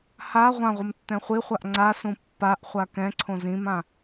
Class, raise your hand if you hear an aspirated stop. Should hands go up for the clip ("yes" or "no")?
yes